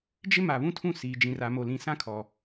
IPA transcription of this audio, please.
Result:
d͡ʒ ɪ˦ m a˨ β ũ˦ tʰ ũ˦˨ s iː˨ d͡ʒ ĩ˨ r a˨ m o˨ l ĩ˨ s ã˦ kʰ ɔ˨

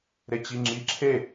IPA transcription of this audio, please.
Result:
ɾ e t͡ɕ i ŋ͡ǁ i ǁʰ e

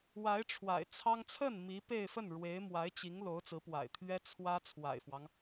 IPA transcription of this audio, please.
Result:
w a˧˥ ɪ̯ ʈ͡ʂʰ w a̰˨˩ ɪ̯ t͡sʰ ɑ˥ ŋ t͡sʰ ə˥˩ n m i˧˥ p e˥˧ ɪ̯ f ə˥˩ n ɻ w e˧˥ ɪ̯ m w a˧˥ ɪ̯ t͡ɕ i˧˥ ŋ l o˧˥ ʊ̯ t͡s ɹ̩˧˥ p w a̰˨˩ ɪ̯ t̪ʰ ɥ ɛ˥ t͡sʰ w ä˥ t͡sʰ w a̰˨˩ ɪ̯ f w ɑ˦ ŋ

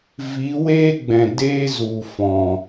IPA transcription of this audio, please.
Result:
v i˨˦ w eː˦ ɡ͡b ɛ̃˨ d eː˦ z u˨ f ɔ̃˨

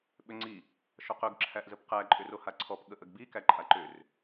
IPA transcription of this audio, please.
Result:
ɓ ʏ ŋ͡ǀ i | ʃ ɔ q ɵ ɡ ǁʰ æ ʔ z ə p q æ ǃʼ ʏ r o h a ǀʰ ɔ p ɠ ə ʔ ə ɡ b i k æ ǃʼ a ǃ ʏ r

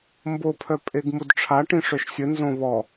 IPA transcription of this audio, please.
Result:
m b o pʰ œ pʼ e ɡ m u d ʈ͡ʂʰ a ʈ ĩ ʂ œ ʃ sʲ ə n z õ β ɔ

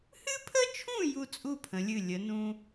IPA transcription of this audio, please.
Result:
h ɨ˥ pʰ ə˥ t͡ʃʰ ũ˥˨ j u˥˨ t͡sʼ u˥˨ pʰ ə̃˩˧ lʲ ɨ˧˩ lʲ ə˩˧ n ũ˧

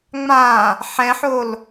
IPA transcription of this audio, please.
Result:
ŋ͡m ã | ħ ɛ̃ ħ o l

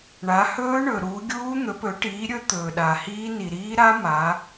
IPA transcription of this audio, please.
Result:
ɳ a˩˧ h ɵː˦˥ ɳ ɵ˩ ɾ uː˩˧ ɡʲ uː˦˥ n̪ ɵ˩˧ p ɵ˩˧ ʈ iː˩˧ ɾʲ ɵ˦˥ t̪ ɵː˩ ɗ a˩ h iː˦˥ n i˩ ɾ iː˦˥ ɾ a˦˥ m a˩˧

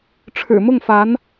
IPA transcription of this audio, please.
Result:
ʈ͡ʂʰ ɻ̩˨˩ m ʊ˥˩ ŋ f a˧˥ n

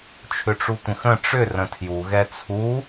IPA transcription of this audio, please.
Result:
t͡ʃʰ ʏ ʈ͡ʂ u tʷ ə̃ x ə̃ ʈ͡ʂ ʏ r ə̃ tʰ j u ɣ ɛ t͡sʰ u

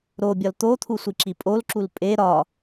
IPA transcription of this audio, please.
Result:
ɾ o bʲ ɒ l t̪ o t̪ʰ u sʷ i ǁ i pʼ o l ǁ u l pʼ e ɾ ɒ

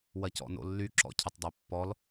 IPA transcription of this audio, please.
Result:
w ɐ c ɔ̰ n o̰ lː y ǁ ɔ̰ cʰ ə tˤ dˤ ø pː ɔ l

